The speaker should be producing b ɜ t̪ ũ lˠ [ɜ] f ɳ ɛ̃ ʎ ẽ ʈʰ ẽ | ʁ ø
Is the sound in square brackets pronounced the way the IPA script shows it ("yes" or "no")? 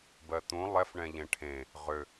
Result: no